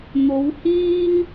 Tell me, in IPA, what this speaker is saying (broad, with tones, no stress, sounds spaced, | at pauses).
n̪ o˨˧ w h iː˥ ŋ